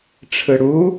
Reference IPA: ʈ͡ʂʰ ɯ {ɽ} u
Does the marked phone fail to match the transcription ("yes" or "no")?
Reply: no